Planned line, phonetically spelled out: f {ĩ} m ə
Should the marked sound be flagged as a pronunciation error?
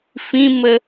no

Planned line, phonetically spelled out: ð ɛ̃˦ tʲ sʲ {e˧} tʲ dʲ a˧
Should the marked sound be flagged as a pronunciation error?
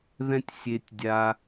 no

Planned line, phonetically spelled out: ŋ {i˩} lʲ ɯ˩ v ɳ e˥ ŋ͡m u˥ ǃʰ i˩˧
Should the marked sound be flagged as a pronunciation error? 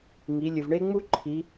yes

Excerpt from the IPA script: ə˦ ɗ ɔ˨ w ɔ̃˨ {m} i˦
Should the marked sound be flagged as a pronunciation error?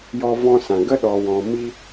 no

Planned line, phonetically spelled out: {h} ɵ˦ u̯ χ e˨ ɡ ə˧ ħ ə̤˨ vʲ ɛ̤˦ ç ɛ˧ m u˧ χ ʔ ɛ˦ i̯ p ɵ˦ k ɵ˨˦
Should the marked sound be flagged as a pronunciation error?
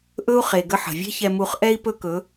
yes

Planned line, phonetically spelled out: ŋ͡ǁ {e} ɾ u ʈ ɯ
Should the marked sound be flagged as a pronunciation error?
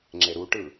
no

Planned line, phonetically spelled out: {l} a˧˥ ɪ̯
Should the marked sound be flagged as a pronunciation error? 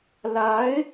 no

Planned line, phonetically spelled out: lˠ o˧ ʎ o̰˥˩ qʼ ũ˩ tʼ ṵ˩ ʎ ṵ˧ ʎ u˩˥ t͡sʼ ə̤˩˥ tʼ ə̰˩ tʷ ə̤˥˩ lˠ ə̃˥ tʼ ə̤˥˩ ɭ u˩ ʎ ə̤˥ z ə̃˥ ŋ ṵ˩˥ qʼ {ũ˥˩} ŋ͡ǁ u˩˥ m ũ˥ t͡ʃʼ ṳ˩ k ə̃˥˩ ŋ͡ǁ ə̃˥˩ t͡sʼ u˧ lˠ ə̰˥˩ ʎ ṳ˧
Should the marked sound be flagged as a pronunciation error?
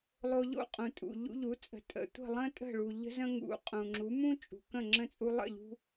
yes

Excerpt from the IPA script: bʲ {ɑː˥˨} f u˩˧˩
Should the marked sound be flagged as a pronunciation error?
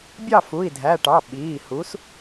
yes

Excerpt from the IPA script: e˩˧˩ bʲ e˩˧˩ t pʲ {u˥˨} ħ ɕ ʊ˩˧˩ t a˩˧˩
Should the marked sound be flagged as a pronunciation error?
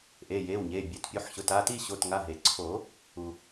yes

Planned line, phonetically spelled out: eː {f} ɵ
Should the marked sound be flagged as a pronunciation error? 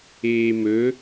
yes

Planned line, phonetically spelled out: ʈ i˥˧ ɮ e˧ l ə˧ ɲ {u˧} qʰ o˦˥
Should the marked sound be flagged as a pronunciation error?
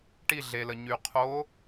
yes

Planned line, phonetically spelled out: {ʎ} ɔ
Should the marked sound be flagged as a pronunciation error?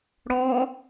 yes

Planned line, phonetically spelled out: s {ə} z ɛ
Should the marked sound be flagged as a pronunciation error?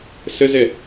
no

